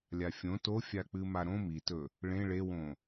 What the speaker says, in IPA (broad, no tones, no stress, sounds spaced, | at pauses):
lʲ a fʲ õ t o fʲ a k͡p ɨ m a ɾ õ m i t ɵ | ɭ ẽ ɭ e w õ